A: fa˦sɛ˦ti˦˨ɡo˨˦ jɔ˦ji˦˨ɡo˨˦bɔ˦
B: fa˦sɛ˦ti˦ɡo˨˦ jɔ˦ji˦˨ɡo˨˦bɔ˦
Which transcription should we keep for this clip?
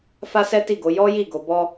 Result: A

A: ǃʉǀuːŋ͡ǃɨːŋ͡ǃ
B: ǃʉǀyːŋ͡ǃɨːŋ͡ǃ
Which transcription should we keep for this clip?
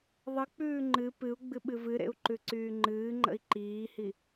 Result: B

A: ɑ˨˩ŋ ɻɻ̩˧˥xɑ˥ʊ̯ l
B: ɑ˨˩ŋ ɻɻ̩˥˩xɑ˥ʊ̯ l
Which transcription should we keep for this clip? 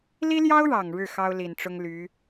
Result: B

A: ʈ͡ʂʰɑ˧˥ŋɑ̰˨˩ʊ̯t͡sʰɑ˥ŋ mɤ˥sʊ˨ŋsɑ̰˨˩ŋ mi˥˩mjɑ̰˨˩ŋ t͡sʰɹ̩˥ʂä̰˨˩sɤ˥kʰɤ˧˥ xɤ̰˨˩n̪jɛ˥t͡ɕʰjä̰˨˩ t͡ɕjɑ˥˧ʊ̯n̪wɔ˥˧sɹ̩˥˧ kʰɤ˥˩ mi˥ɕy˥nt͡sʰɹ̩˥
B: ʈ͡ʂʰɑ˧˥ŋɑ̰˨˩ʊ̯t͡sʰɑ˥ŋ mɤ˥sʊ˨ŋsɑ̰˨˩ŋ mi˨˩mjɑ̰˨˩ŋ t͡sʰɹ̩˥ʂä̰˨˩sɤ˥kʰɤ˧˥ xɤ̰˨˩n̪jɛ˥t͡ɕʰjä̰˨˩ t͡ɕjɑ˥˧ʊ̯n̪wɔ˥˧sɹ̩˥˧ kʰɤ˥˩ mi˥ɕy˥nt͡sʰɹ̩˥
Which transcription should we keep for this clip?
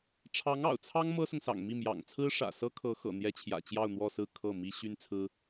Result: A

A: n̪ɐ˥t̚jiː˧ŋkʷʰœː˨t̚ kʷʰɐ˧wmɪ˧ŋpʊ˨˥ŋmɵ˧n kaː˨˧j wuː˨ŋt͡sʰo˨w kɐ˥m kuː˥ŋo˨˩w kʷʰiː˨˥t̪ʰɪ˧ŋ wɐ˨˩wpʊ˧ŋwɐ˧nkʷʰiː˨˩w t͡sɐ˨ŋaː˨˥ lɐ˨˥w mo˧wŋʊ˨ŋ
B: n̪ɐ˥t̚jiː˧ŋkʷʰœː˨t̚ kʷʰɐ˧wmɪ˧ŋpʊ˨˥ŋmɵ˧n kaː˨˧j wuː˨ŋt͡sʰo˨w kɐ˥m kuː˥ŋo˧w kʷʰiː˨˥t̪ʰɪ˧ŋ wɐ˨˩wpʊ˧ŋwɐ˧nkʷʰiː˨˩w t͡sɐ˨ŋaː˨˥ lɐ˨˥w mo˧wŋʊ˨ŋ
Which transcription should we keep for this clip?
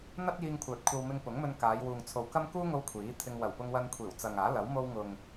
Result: B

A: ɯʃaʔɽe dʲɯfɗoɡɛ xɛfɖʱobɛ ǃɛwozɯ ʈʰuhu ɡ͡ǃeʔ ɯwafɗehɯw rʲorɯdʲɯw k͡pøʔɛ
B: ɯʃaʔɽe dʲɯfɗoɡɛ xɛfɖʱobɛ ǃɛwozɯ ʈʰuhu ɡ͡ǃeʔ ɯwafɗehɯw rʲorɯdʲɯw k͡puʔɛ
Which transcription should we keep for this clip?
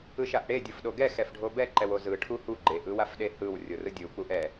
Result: B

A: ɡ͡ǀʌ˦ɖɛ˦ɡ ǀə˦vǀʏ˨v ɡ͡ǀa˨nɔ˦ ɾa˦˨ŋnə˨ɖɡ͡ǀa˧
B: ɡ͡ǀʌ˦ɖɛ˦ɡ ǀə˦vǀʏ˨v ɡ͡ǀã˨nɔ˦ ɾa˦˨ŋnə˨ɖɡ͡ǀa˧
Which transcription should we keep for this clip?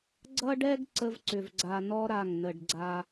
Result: A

